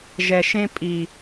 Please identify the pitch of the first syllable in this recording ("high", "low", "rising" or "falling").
low